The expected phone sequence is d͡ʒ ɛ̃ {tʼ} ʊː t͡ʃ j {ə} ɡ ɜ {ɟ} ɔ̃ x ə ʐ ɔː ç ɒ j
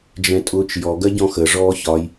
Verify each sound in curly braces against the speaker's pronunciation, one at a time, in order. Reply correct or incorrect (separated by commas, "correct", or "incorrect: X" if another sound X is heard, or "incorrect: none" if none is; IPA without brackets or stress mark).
correct, incorrect: ɔ, correct